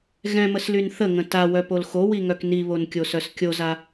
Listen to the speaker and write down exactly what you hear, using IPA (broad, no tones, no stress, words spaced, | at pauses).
ɣɛ̃məslyn θəŋə̃ tawœpol xowiŋœk niβonkʲosœs kʲoza